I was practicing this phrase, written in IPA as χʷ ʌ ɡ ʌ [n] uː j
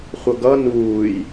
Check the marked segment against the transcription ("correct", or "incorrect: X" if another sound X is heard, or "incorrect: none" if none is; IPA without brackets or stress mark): correct